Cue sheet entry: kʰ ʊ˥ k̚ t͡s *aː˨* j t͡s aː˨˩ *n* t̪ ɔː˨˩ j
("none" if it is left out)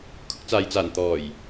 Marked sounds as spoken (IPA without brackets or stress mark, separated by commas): aː˨, n